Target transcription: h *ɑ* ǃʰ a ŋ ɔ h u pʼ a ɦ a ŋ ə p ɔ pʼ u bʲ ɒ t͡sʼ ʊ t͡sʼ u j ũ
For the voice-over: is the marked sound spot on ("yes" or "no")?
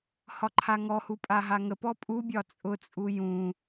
no